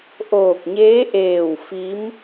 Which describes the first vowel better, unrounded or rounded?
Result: rounded